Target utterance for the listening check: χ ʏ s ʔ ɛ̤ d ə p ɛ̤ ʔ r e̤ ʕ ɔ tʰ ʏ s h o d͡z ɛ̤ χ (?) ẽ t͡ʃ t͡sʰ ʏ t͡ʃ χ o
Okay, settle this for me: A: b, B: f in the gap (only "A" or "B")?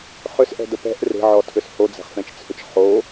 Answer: B